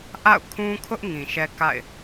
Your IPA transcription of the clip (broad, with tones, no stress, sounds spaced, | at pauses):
ʔ a̰˦˨ ʊ̯ kʰ ũ˦ kʰ ʊ˦ ʔ ŋ ĩ˨ ʃ ɛ˦ k a̰˦˨ ɪ̯